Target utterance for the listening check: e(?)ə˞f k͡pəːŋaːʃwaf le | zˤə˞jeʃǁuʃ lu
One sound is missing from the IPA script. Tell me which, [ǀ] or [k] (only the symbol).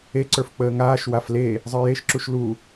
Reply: ǀ